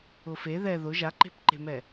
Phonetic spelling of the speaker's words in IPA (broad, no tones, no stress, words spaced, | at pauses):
ʊfe ðɛ ðʊ ʒaǃe̤pǃe̤mɛ